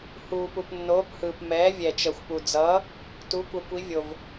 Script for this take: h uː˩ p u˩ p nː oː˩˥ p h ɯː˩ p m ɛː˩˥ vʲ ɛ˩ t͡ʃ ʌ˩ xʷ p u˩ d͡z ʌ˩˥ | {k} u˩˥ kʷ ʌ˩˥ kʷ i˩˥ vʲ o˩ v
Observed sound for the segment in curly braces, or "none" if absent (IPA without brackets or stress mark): t